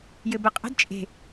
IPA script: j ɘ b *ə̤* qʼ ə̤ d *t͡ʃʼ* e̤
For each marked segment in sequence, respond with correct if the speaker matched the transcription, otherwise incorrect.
incorrect, correct

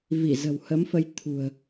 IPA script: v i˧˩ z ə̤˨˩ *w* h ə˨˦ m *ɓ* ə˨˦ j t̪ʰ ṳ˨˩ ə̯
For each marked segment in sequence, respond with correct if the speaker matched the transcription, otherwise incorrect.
correct, incorrect

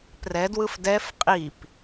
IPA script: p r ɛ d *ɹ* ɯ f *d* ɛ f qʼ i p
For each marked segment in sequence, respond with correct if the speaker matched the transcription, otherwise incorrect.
incorrect, correct

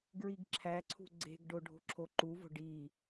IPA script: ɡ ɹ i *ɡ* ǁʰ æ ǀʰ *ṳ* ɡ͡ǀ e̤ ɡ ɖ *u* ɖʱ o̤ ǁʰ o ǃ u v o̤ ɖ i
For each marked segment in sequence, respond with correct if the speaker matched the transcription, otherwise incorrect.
correct, correct, incorrect

